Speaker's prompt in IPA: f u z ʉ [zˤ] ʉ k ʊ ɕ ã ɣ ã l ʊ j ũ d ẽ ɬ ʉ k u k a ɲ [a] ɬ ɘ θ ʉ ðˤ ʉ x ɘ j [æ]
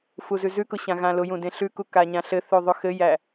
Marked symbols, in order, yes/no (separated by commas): no, no, yes